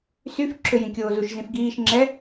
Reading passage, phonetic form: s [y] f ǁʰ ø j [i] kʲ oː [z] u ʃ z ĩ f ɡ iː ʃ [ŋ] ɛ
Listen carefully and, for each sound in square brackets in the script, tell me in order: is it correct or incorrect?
correct, incorrect: ĩ, correct, incorrect: ŋ͡ǁ

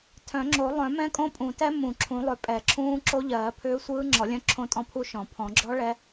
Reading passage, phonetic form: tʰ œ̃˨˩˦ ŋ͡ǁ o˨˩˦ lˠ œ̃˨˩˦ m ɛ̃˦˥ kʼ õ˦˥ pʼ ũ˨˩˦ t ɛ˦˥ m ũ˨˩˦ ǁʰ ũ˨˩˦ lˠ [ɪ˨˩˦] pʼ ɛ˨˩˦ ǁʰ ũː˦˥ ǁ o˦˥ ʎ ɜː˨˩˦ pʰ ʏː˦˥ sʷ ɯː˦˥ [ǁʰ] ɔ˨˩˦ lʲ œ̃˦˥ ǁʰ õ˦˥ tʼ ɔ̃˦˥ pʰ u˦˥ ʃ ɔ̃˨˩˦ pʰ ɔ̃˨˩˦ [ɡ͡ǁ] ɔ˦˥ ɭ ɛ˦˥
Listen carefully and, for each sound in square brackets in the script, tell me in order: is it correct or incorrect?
incorrect: ʏ˨˩˦, incorrect: ŋ͡ǁ, correct

